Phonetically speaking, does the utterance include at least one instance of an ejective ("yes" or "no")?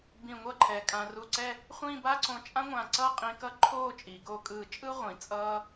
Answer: yes